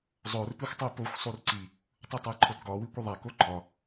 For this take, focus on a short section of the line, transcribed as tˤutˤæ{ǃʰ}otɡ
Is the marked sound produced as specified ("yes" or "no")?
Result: yes